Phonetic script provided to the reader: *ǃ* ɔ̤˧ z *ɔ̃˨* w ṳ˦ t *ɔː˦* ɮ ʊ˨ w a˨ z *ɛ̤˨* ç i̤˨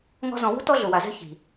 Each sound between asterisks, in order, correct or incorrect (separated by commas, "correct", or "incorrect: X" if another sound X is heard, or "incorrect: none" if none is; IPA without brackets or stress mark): incorrect: ŋ, correct, incorrect: ɔ˦, incorrect: ɛ̤˦